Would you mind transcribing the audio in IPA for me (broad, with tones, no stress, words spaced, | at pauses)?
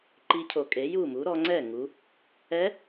ǃi˧˥cʰo˩˧kʼe˩˥ ju˥˩mu˩˥ ɾɔ˩˧ŋ͡ǀɛ˥˩ŋu˩˧ | ɛ˧˥